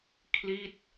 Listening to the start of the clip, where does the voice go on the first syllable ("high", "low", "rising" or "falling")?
falling